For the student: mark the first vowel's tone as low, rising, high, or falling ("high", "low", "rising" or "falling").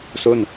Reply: falling